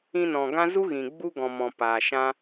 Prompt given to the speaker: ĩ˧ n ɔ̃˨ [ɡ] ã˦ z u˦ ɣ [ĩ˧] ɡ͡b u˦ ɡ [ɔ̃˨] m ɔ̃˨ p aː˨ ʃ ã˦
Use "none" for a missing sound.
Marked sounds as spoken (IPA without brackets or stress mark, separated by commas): ɡ, ĩ˨, ɔ̃˨